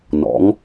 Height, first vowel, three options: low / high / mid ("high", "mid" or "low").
mid